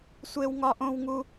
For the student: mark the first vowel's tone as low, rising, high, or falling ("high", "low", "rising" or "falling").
high